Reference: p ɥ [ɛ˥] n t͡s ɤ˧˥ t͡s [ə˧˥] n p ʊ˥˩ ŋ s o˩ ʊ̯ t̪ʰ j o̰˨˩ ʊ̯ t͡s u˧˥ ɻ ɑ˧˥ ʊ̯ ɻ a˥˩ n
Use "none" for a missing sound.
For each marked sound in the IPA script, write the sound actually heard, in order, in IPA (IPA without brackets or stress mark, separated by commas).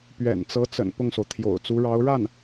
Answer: ɛ̰˨˩, ə̰˨˩